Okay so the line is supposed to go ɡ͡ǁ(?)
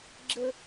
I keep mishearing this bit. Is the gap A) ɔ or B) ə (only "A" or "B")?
B